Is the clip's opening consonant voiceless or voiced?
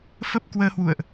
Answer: voiceless